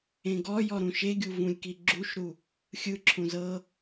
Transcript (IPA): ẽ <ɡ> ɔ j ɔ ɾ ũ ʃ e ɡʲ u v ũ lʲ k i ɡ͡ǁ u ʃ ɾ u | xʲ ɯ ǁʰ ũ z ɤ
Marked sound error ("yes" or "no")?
no